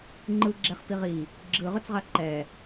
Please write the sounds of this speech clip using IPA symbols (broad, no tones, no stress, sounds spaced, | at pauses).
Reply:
ŋ͡ǃ ɯ ɡ͡ǁ ɛ χ p i ʁ i | ɡ͡ǁ ɯ ʁ ɯ t͡s ʁ a ǃ ɛ